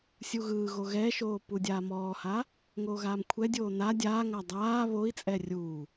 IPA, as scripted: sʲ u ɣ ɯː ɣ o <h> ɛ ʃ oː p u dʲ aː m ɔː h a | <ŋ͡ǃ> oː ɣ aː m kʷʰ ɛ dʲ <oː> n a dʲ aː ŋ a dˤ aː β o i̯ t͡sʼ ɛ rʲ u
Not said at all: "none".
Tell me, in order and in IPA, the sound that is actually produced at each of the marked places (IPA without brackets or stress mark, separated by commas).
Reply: ɣ, ŋ, oː